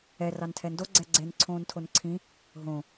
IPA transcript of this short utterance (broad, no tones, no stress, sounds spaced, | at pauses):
ɛ r ɑ n tʰ ɛ n d o ɡ͡ǀ ɛ ɡ͡ǀ e n ǀʰ õː n tʰ o n ǀʰ ĩ | ɦ õ